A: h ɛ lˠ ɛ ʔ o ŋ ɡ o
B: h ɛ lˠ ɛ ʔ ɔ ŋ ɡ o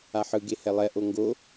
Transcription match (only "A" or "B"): A